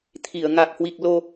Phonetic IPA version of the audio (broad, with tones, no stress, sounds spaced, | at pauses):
t̪ʰ i˧˩ ə̯ ŋ a˨˩ k̚ h w i˨˩ k̚ l o˧